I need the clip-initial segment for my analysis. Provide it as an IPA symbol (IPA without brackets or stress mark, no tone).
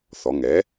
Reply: θ